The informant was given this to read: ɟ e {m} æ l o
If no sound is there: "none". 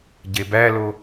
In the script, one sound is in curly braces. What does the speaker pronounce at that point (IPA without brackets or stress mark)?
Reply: b